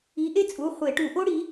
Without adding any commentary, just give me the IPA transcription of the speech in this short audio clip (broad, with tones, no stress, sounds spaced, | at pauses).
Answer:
i˨˥ ʔ e˥ t͡sʼ u˩˧˩ χʷ e˧˩˧ ʈ u˧˩˧ ʔ o˥ ɽ i˨˥